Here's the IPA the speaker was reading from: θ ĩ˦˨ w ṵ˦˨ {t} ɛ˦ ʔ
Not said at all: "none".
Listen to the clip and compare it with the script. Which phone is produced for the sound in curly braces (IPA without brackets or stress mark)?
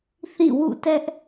t